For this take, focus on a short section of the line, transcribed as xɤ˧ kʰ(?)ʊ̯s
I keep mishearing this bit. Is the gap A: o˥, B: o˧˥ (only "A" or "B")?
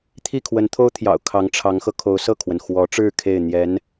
B